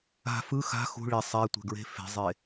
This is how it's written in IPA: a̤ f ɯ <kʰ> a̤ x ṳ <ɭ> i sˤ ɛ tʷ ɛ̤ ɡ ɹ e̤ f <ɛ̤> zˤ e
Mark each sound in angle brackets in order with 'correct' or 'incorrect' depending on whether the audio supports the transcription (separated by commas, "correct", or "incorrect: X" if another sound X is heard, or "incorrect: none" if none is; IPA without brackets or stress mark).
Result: incorrect: x, correct, incorrect: e̤